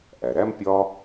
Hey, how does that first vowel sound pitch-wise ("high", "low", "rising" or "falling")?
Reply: low